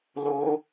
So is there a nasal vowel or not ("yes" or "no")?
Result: no